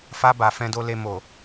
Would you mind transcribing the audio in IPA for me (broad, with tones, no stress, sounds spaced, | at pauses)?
f a˧ b a˨ f ɛ̃˨ d o˨ l e˨ m o˨